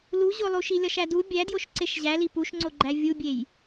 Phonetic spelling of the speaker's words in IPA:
l u ʑ o lˠ u ʃ i lʲ ɒ ʃ æ d u bʲ æ d j o ʃ ǀ e ʃ ʑ æ l i p u ʃ ŋ͡ǀ o ɡ͡ǃ æ vʲ u bʲ e j

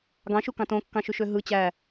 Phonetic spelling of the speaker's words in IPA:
ɡ ɑ̃ ʃ u k ɑ̃ t õ kː ɑ̃ ʃ y ʃ ø ɦ ɯ t͡ɕ æ

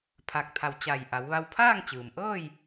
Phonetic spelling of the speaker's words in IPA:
pʰ a˧˩ k̚ t̪ʰ a˧˩ w t͡ɕ a˧˩ j ʔ a˩˧ w ʋ a˧ w pʰ aː˥˨ ŋ t͡ɕ ɯː˩ m ʔ ɤː˥˨ j

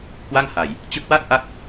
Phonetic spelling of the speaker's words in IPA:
k w a˥˩ ŋ h a˨˩ j | t͡ɕ ɯ˦˥ k̚ w a˥˩ t̚ ʔ a˥˩ k̚

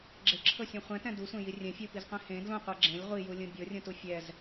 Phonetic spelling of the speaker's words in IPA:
ɡ͡ǁ e ǁʰ ɤ sʲ ũ χʷ ɛ̃ t ɛ̃ d u sʷ ẽ j i rʲ ɛ̃ fʲ u p i z qʷ ẽ h ẽ d l ũ qʷ ɤ ɡ͡ǁ ẽ lʲ ʁʷ i j u lʲ ũ bʲ ɤ rʲ ũ t u fʲ ɛ z

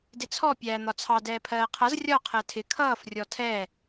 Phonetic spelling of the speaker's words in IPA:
d ɪ t͡sʰ ɔ pʲ æː n̪ ɒ t͡sʰ ɑ d ɛː pʰ ɜː qʰ ʌ z rʲ ɒ qʰ ɜ tʰ ɪ kʰ ʌː f rʲ ɔ tʰ ɛ

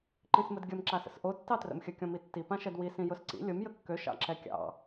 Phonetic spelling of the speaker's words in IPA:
ǃ ĩ s m ə d ɡʲ ə m ǁ a s ə̰ s ʔ o tː ɑ t r ə̰ m xʲ ə kʲ ɔ̃ m i tː i p ã ʃ ɛ d w i s ĩ j ʊ s ǀ ḭ lʲ ʊ m j ə kː ø ʃ ɑ̰ ǁ ɛ kʲ ɑ̰

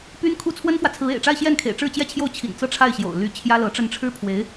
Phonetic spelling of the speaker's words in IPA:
p y˥ n kʰ u˥ t͡sʰ w ə˥ n f w ä˨ t͡sʰ ɹ̩˧˥ ḛ˨˩ ɪ̯ ʈ͡ʂ a˥˧ ɪ̯ ɕ j ɛ˥˩ n kʰ ḛ˨˩ ɪ̯ ʈ͡ʂ ɻ̩˥˧ t͡ɕ j ɛ˥˧ t͡ɕʰ j o˥˩ ʊ̯ t͡ɕʰ ḭ˨˩ n t͡s ɤ˥˧ ʈ͡ʂʰ a˥˩ ɪ̯ ɕ j o̰˨˩ ʊ̯ l y˧˥ t͡ɕʰ j ä˥ l ɤ˧˥ ʈ͡ʂ ə˥˩ n ʈ͡ʂʰ ɻ̩˥ pʰ w e˧˥ ɪ̯

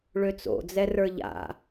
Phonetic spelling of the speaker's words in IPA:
ɭ ø t͡s o̰ d͡z ɛ r ə˞ ʎ a̰

